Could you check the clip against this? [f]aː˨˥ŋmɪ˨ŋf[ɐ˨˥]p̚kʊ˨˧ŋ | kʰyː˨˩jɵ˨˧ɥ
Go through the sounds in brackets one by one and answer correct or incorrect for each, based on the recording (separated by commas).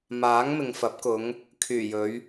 incorrect, correct